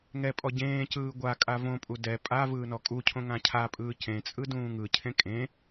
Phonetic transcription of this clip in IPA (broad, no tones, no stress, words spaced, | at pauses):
ŋɛpʼɔ ɟẽːcɯː ɡʷakʼa võpʼu dɛ pʼa vɯːnɔkʼucʰõ ŋãcʰapʼɯː cẽt͡sʼɯ dũːŋɯcʰẽ kʼẽ